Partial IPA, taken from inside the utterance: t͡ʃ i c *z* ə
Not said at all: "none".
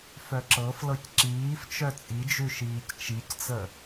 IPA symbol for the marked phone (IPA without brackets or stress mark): t͡s